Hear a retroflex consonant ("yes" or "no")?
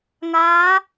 no